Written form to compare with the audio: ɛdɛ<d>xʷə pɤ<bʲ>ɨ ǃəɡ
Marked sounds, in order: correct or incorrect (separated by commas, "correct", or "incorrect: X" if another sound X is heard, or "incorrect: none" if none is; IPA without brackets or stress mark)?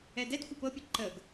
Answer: correct, incorrect: pʲ